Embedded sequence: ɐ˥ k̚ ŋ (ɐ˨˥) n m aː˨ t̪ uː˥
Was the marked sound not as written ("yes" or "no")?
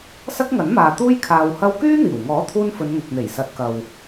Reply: no